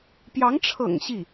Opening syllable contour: rising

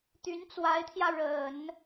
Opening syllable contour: rising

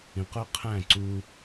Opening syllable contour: low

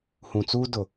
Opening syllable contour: low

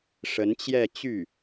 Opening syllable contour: rising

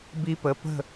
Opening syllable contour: high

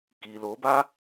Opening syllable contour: low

